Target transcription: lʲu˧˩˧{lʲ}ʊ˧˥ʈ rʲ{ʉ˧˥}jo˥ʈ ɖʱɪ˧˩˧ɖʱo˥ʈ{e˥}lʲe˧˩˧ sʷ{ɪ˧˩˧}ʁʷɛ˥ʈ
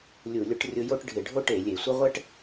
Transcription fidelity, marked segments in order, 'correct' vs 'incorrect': correct, incorrect: ʊ˧˥, incorrect: e˧˩˧, incorrect: ɪ˥

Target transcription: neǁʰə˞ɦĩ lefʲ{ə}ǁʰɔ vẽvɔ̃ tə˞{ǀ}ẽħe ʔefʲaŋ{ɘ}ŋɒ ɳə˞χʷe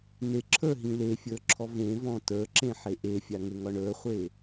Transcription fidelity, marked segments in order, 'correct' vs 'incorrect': incorrect: ə˞, incorrect: ǁ, correct

